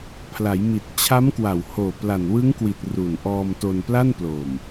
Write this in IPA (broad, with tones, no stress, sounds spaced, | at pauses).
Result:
pʰ l a˩˦ j m i˨˩ t̚ t͡ɕʰ a˦˥ m k w a˨˩ w h oː˨˩ p l a˨˩ n w ɯ˦˥ ŋ k w i˨˩ t̚ r u˨˩ n ʔ ɔː˧ m t o˧ n p l a˥˩ n p l o˨˩ m